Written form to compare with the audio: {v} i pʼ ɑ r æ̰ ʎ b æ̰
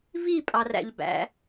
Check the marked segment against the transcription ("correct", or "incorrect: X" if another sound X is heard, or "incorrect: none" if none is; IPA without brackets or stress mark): correct